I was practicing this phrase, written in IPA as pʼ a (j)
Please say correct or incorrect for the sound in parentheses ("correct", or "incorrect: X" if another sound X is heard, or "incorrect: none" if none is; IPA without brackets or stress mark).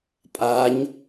incorrect: ɲ